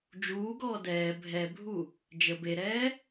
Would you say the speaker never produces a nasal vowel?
yes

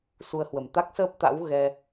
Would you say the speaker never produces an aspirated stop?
yes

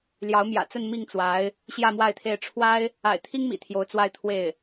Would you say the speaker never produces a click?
yes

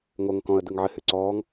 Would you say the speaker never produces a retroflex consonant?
yes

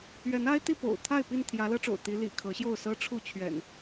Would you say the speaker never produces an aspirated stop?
no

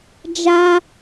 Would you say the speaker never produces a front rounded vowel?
yes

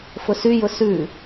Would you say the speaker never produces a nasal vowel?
yes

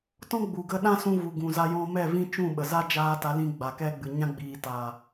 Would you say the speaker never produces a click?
yes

